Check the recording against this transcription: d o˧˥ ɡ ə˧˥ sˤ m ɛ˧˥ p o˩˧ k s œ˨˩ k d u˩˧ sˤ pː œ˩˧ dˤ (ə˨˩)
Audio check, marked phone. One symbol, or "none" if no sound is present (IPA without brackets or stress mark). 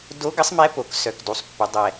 ɛ˨˩